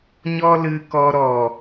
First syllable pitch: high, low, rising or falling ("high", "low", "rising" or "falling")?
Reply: high